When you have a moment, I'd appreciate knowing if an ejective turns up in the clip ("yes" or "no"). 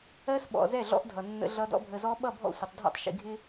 no